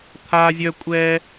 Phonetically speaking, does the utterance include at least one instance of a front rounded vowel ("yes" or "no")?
yes